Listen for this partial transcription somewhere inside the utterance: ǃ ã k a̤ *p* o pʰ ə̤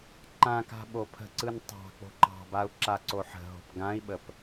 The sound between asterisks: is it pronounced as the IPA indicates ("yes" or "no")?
no